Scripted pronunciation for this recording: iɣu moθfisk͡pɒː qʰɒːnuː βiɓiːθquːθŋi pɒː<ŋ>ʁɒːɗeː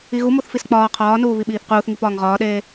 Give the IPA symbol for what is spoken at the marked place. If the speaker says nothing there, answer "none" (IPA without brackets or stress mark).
ŋ